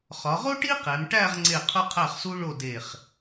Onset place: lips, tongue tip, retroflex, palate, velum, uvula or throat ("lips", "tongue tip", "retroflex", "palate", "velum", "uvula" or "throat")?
uvula